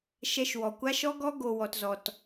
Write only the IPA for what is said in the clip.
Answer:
ʃ ɛ˧ ʃ w ɔ˨ kʷ a˦ ʃ ɔ˦ ɡ ɔ˦ ɡ o˧ w ɔ˧ t z ɔ˧ t

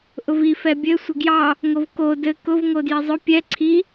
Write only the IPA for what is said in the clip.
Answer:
ʔ ʊ v i f ɛ bʲ ɘ sʷ ə ɡ j ɑ | ŋ o v k o d ɘ k ʊ v ŋ o d j i zˤ ʊ pʲ ɛ ǀʰ i

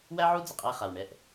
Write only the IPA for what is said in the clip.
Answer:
w æ˥ ʕ u˥ d͡z ə˩ qʼ æ˦˨ χ a˩ w ɳ ɛ˦˨ ʔ

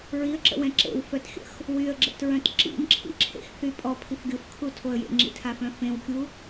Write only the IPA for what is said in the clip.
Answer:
ɹ i ə̯ ǁ ə̰ w ɛ̃ ǁ ḛ w f œ t xʲ ə̰ x | w y ə̯ ɡ͡ǁ ə̰ t ɹ œ̃ t ǁ ḭ m ǁʰ ḭ ǁʰ ḛ x θ y pʼ ɔ pʰ i f ɡʲ o f kʰ u tʰ o ə̯ j ḛ ŋ͡ǁ ḭ tʰ a f œ̃ f ẽ w kʲ u

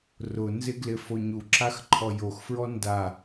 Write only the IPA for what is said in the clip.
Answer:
r ʊ n z ɪ ɡ l ɪ f o ɲ u ǁ a x ǃʰ ɔ j o x f ɹ ɔ n d a

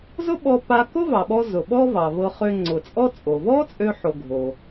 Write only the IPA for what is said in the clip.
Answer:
z ʊ˥ ɓ ɔ˧ p a˧ k ʊ˥ v ɑ˩ ɓ ɔ˧ z ʊ˩ ɓ ɔ˥ v ɑ˩ v ɤ˧ χ ø˧ ŋ͡ǀ ʊ˩ t͡sʼ ɔ˥ t͡sʼ o˩ v ɔ˥ t͡sʼ ø˧ ħ o˧ ɡʱ o˩

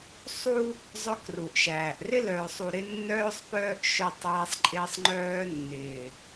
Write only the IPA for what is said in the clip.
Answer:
sˤ u˦ | zˤ œ˦ k r u˨ ʔ ʃ æː˨ ʔ r ɪ˦ l œː˨ sˤ u˨ ɾ ɪ˦ nː œː˦ sˤ p œː˦ ʔ ʃ œ˦˨ tˤ æː˦ sˤ ǃʼ ɪː˦ sˤ ŋ͡ǃ œː˦ nː ɪː˨

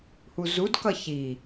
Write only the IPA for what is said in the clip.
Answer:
h u z u d k ʌ ç i

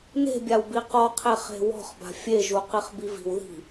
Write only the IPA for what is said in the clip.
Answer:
n e̤ bʲ a w b i q ɔ qʰ e χ e̤ w ɔ̤ χ b a̤ fʲ e ʒ u q i χ b i v i̤ w ð i̤

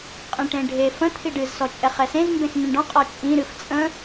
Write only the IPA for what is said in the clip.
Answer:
qʼ ẽ ʈ ẽ ɖʱ e f ə̃ t̪ʰ i ɖ ɨ z s ɔ t͡ʃʼ ɛ χ ɛ s ẽ z m b ẽ x n ĩ ɳ ɖ ɔ̃ qʼ ɔ t͡ʃʼ ĩ ɾ ɨ f t͡sʼ ə̃

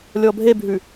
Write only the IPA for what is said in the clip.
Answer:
lʲ ɔ bʱ e bʱ ʉ

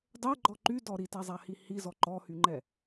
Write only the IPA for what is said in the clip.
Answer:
dˤ ɛ ɡ͡ǃ ɔ ǃ y d ɔ ɾ i t a zˤ a h i h i z ɔ ǃ ɔ h y ŋ͡ǃ ɛ

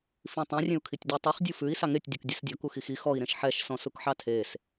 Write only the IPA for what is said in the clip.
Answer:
f ĩ tˤ ĩ rʲ ẽ u̯ kʰ i tʲ dʲ ɔ tˤ i χ dʲ u f ʉ i̯ s ɑ ŋ e tʲ dʲ u k dʲ ɛ s dʲ ɔ k u x i x i x ɔ i̯ ɾ ẽ ʃ ħ ɛ ʃ s ɔ̃ s u k ħ ɑ tʰ e s

